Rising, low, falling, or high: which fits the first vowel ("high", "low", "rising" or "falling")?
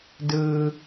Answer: low